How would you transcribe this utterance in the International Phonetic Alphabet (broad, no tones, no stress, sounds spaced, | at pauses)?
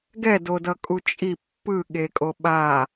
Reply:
ɡ ɛ d o d ʌ kʼ u t͡ʃʼ i pː ɯ ɠ e kʼ o ɓ a